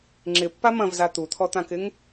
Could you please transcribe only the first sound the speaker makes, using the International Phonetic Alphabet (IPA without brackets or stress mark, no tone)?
ŋ͡ǁ